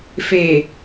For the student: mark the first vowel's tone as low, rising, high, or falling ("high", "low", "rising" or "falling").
low